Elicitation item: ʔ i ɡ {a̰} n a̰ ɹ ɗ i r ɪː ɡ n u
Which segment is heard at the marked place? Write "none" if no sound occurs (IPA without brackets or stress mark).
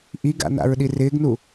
a̰